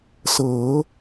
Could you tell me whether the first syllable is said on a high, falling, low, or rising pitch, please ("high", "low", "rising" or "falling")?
rising